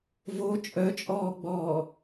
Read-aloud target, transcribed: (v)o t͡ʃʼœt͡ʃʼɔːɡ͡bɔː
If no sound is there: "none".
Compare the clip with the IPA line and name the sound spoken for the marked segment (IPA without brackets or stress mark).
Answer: v